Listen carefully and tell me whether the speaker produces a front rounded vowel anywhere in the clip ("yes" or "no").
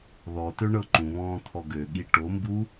yes